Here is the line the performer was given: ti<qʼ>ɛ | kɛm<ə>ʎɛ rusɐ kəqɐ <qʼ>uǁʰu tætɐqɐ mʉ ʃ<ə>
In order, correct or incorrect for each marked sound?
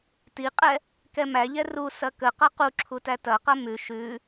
correct, incorrect: æ, incorrect: q, incorrect: ʉ

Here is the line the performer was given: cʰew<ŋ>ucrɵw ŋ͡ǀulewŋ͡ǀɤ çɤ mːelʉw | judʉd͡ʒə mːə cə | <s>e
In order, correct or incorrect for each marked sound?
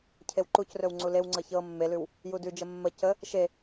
incorrect: ǃ, incorrect: ʃ

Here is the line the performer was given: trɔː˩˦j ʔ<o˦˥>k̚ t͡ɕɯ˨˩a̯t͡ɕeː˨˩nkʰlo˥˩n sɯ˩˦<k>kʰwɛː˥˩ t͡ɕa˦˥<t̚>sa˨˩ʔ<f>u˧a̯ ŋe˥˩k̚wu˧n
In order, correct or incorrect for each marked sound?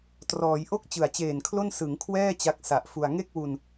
incorrect: o˥˩, incorrect: ŋ, incorrect: k̚, correct

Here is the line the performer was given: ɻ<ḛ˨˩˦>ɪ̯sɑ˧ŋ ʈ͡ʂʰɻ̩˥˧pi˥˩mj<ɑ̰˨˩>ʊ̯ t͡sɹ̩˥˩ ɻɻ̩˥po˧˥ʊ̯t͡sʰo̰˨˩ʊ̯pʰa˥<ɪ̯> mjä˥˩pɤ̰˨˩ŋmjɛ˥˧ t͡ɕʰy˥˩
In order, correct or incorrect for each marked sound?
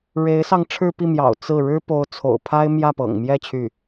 incorrect: e˧˥, correct, correct

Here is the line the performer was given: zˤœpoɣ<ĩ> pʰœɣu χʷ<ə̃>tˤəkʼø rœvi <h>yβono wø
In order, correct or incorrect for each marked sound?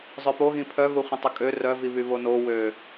correct, correct, incorrect: β

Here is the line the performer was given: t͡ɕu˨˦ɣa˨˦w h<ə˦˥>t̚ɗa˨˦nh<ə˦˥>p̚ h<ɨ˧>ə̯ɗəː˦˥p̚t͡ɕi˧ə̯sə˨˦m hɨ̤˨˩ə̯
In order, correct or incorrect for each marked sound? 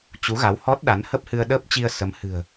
incorrect: ɔ˦˥, correct, correct

